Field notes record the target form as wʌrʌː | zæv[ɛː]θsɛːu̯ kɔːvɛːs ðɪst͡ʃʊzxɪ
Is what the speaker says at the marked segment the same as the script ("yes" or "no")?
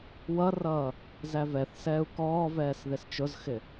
no